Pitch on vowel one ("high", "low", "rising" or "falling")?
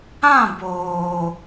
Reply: falling